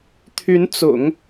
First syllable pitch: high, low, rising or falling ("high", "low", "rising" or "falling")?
rising